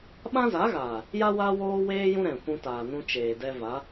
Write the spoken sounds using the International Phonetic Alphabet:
ɓã˦za˨˦ɣaː˨ | ja˦wa˦ woː˦weː˦ jũ˦ɾɛ̃˨ kʷũ˧taː˨ nũ˧t͡ʃeː˨dɛ˧ va˨˦

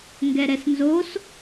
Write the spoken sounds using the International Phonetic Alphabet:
ŋɡɛɾɛsnzos

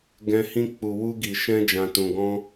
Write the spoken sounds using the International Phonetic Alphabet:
ɡɛ̃˧ hĩ˧k͡pu˨ wu˧ɡi˨ ʃɛ̃˧d͡ʒã˨ tũ˨ɡɔ̃˧

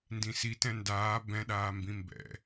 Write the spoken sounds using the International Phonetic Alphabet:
ndĩsitɛ̃ ndaː bɛ̃ɗaːmbĩ mbɛ̰

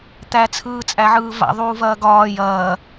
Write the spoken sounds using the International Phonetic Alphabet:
t̪æt͡sʰɯːt͡sʼæʕɯː va̰ ðˤuːvɐːɡɒː jɐː

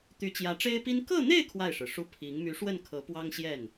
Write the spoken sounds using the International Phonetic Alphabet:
t̪y˧˥t͡ɕjä˧˥ʈ͡ʂe˥ɪ̯pi˥n kɤ˥˧n̪e˥˧ɪ̯ kʰwa˥˩ɪ̯ʂɻ̩˩ʂu˥ pʰi˧˥ŋ my˧˥ʂwə˥˩nkʰɤ˧˥ pwɑ˥ŋɕjɛ˥˩n

